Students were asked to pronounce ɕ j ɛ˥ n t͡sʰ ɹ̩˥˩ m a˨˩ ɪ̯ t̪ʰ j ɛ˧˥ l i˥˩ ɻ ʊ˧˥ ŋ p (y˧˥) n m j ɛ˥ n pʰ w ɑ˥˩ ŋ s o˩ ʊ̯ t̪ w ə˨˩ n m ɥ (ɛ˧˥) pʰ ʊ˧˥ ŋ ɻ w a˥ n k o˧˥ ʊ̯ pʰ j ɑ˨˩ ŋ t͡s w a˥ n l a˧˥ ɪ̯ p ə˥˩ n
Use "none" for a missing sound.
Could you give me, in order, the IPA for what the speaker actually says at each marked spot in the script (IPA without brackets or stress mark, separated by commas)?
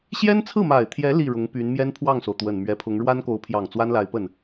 y˧˥, ɛ˧˥